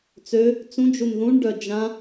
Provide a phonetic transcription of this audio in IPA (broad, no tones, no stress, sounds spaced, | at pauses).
t͡s ø | t͡s ũ d͡ʒ u n ð ũ ɳ ɖ œ d͡ʒ ã